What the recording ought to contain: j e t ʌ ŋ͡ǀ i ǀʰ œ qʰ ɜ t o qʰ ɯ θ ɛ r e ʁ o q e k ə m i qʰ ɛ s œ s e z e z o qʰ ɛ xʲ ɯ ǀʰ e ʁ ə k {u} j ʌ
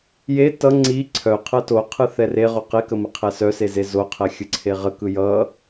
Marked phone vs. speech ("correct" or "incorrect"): incorrect